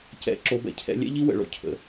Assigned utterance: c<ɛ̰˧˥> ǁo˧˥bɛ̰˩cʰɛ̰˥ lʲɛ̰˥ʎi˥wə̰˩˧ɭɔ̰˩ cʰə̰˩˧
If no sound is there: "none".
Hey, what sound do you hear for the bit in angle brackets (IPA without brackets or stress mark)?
ɛ̰˧˥